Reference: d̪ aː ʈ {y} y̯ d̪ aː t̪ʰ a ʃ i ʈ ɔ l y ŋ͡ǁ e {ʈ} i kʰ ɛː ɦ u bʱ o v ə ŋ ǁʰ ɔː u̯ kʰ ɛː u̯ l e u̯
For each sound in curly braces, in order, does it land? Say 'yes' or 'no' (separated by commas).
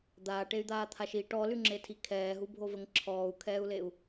no, no